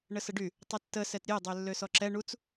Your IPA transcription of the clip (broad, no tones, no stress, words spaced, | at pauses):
ɳəsəɖy | tˤətːə sɛtɾʲe dˤølːøsɔǁɛ ɳut͡s